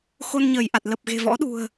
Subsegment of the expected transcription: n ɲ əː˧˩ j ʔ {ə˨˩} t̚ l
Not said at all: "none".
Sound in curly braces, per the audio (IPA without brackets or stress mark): a˨˩